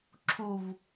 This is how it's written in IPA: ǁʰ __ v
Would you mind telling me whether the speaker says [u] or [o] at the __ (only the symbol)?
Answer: u